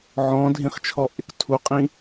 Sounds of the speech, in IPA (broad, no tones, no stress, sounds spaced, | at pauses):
ʕ ɔ̃ dʱ ĩ χ t͡ʃʰ ɔ ʔ ɪ k tʰ u qʼ ĩ